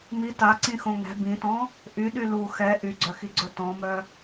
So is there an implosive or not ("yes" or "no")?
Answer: yes